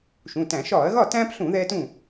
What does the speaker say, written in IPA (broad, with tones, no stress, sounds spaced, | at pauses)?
ʃ ũ˩˧˩ t æ̃˧˩˧ ʃ ɒː˧˩˧ ɐ̯ ɣ ɒ˥˩ t æ̃ː˦ p ɬ ũ˧˩˧ ð ɛː˦ t ũ˥˩